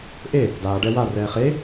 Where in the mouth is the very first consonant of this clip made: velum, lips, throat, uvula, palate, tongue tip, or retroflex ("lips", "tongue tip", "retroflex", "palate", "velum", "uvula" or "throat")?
throat